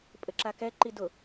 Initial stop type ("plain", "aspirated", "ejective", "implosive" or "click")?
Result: ejective